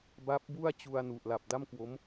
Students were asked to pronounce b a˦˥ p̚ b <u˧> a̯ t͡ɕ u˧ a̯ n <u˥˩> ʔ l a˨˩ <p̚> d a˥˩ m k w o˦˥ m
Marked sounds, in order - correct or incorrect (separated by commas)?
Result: incorrect, incorrect, correct